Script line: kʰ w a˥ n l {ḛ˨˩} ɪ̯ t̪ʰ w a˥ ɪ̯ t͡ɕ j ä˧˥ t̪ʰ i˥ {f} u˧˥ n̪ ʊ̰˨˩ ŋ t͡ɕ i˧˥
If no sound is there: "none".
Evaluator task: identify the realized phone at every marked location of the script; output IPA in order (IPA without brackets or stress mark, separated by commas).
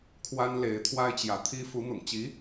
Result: e˧˥, f